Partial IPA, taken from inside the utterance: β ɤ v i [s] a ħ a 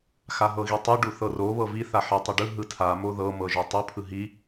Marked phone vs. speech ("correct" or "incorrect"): incorrect